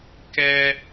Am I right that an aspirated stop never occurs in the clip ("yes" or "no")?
yes